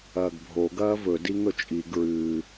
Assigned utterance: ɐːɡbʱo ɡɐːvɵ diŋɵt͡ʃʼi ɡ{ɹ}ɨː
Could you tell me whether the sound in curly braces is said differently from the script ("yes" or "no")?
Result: no